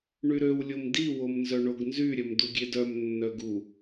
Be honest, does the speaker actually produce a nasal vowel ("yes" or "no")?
no